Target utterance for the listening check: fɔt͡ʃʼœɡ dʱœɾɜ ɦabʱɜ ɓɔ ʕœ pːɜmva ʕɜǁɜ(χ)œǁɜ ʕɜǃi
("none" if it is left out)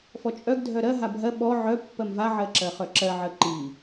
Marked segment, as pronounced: χ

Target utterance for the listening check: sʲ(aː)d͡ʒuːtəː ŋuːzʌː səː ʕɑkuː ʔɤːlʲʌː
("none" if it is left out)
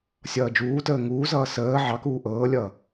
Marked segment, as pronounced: ʌː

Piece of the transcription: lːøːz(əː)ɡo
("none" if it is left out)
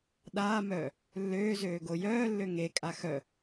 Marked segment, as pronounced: øː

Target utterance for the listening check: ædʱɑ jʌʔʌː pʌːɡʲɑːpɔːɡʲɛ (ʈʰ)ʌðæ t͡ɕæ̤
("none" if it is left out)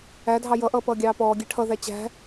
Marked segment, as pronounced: ʈʰ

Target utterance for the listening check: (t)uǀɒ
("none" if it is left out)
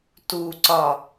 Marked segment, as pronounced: t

